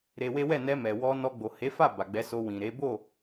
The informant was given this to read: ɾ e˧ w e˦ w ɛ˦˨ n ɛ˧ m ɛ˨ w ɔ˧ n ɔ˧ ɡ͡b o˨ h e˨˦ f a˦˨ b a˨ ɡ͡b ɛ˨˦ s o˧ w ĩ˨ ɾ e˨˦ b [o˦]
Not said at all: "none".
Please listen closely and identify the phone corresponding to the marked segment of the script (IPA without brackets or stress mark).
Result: o˦˨